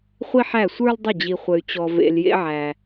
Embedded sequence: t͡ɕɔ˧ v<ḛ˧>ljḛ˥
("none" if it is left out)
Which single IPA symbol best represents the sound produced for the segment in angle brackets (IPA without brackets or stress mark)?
ḛ˧